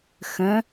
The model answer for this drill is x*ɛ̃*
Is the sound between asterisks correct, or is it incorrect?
incorrect: ə̃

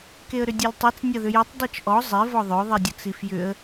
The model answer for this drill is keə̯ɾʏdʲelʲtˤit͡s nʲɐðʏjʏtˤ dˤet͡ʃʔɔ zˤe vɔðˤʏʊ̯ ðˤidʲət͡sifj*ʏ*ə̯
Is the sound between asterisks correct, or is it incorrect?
correct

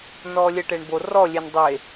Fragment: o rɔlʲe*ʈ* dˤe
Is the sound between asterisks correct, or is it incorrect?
incorrect: n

